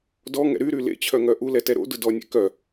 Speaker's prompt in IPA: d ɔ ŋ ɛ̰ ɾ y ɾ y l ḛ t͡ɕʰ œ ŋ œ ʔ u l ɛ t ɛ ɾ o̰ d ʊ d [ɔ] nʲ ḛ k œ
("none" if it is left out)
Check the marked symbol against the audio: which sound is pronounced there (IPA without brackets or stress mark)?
ɔ